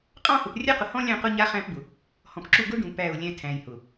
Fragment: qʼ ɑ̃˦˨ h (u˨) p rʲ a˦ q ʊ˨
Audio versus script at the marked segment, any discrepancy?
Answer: yes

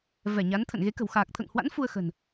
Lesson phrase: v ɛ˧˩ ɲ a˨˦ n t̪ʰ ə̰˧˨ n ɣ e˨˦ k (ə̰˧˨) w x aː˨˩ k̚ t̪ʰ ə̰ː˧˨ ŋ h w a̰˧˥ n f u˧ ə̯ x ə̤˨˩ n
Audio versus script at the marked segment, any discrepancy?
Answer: yes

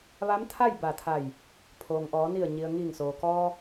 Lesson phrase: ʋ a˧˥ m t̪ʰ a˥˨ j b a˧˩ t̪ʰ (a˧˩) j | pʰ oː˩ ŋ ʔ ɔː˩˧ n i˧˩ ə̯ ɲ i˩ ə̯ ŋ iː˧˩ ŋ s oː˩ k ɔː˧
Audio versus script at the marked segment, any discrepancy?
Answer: no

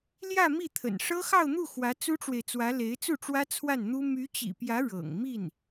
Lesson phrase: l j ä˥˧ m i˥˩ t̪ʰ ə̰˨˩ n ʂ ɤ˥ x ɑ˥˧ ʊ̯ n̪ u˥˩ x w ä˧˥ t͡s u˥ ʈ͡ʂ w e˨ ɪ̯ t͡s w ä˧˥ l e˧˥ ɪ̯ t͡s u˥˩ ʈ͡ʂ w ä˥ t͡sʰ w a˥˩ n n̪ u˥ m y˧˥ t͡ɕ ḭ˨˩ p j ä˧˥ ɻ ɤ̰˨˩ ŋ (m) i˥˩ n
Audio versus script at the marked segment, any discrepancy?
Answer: no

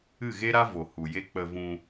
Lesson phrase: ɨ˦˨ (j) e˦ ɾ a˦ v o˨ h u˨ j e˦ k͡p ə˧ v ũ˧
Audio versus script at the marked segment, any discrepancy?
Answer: yes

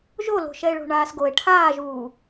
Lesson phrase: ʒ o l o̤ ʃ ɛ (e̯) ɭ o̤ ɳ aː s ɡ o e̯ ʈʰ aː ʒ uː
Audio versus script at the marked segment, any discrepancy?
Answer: no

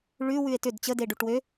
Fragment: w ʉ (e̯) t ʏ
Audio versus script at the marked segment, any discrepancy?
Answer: no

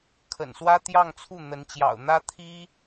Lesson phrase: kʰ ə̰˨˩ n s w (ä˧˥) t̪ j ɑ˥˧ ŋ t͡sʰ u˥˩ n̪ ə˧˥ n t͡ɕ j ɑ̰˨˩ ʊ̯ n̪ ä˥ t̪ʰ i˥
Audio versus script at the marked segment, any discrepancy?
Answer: yes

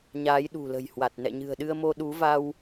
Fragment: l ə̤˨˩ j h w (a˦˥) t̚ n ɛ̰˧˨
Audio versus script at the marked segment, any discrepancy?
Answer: yes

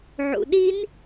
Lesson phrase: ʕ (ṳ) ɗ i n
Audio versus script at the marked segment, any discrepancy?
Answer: yes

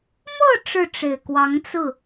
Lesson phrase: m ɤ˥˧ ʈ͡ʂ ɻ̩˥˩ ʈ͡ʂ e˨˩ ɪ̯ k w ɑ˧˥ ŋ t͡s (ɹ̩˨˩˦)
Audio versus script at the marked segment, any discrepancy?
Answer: yes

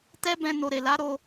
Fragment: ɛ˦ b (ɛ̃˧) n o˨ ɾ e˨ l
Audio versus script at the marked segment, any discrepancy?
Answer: no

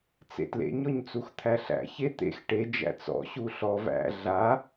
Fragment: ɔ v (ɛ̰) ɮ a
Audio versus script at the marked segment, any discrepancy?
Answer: yes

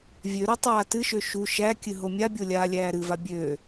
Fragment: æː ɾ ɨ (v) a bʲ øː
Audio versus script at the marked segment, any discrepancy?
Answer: no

